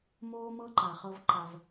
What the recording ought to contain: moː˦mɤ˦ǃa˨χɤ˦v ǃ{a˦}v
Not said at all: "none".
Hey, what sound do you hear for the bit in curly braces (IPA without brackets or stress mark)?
a˦